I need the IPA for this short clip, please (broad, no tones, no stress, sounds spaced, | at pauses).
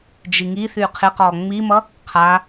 d͡ʒ i ŋ i θ y qʰ ɪ q ɔ ŋ͡m i m ʌ | qʰ a